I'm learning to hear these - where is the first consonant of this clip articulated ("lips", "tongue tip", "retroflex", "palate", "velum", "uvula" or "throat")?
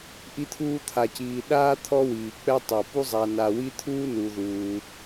throat